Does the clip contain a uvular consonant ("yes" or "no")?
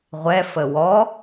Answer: yes